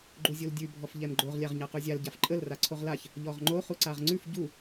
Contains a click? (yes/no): yes